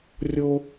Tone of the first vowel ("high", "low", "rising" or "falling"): high